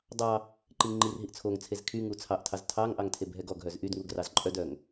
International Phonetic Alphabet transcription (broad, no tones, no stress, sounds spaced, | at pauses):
dˤ ɑ | ǃ i ŋ ŋ͡ǃ i r ɦ i ʔ t͡sʰ o ŋ t͡sʰ e z kʰ y ŋ u t͡sʰ ɑ ʔ tʰ ɑ z tʰ ɑ ŋ ʔ ɑ ŋ tʰ e b ɦ ɛ ɡ ɔ ɡ ɦ œ z ʔ y d ŋ u ɡ r ɑ z ǃʼ œ d œ ŋ